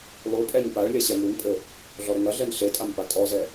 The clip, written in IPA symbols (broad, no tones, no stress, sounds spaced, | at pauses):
lˠ u pʼ ɛ ɲ p a ɭ lʲ ɐ ɕ ɛ m u n pʼ ɘ | ɮ ɔ ɾ ɘ ŋ ɐ ɮ ɛ n ɬ e tʼ a m p a tʼ ɔ z ɛ